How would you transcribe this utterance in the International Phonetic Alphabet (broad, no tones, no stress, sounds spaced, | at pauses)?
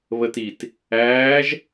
β ə t i t | æː ʒ